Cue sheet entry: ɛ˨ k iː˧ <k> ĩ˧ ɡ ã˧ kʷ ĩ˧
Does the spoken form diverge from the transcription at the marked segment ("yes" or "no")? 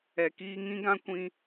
yes